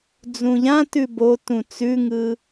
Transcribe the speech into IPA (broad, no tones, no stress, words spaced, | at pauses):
d͡zũʎã tʉbotũ t͡sʉŋɯ